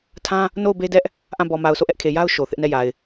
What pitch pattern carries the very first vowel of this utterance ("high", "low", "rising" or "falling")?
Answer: high